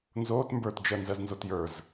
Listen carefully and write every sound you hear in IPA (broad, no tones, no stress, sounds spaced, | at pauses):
n z oː t m b ə˞ t d͡ʒ ɜ n z ɜ z n z o t j ə˞ z